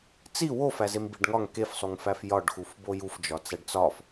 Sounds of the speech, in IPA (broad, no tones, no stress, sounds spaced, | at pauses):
t͡s i w o f æ z e m b i ɖ ŋ ɒ ŋ k e f sˤ u ŋ f æ f j ɒ ɖ x u f b o j u f d͡ʒ ɒ t͡s æ ɖ t͡s ɒ f